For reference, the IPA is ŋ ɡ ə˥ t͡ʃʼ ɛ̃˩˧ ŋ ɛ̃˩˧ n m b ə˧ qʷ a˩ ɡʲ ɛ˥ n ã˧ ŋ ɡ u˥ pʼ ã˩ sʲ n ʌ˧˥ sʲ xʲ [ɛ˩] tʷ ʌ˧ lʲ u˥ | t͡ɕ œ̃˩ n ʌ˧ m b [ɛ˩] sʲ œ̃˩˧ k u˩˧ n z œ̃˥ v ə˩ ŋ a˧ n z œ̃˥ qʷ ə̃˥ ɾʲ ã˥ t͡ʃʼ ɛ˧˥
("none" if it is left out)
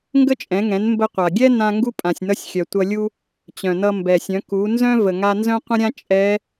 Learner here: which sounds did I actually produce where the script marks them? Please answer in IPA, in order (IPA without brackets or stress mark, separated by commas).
œ˩, ɛ˩